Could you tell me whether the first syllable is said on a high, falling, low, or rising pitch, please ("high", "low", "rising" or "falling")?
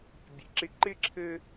low